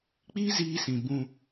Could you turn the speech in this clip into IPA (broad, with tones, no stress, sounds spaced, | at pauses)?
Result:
k͡p iː˦ z iː˧ s ĩ˨ b ũ˧